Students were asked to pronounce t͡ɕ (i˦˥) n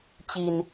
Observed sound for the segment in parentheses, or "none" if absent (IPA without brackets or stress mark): i˧